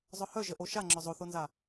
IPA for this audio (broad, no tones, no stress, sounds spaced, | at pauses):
zˤ œ h œ ʒ ə ʔ o ʃ a ŋ͡ǁ œ zˤ o θ o n z a